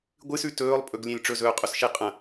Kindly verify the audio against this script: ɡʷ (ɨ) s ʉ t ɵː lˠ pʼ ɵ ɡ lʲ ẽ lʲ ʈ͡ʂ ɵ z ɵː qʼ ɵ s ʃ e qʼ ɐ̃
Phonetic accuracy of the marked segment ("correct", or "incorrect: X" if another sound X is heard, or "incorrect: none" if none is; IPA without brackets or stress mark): correct